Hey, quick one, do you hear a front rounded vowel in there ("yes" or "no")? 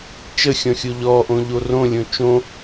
no